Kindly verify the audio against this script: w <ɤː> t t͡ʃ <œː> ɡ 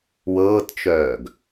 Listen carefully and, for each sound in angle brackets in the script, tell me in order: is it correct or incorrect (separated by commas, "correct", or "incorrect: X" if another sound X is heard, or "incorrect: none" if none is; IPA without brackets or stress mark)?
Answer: correct, correct